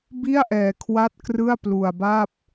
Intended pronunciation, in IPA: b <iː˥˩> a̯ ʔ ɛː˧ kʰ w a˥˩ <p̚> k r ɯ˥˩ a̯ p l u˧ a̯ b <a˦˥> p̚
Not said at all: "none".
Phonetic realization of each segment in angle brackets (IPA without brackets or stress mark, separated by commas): i˥˩, t̚, a˥˩